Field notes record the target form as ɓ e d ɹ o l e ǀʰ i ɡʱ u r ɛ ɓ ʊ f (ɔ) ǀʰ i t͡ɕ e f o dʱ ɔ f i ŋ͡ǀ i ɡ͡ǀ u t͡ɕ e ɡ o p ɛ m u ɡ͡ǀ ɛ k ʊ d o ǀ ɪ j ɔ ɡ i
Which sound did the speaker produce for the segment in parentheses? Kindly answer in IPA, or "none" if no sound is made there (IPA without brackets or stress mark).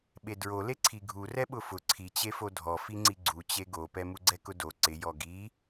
ʊ